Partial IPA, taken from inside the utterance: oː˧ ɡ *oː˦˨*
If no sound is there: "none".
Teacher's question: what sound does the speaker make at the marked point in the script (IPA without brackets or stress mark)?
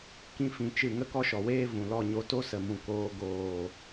oː˨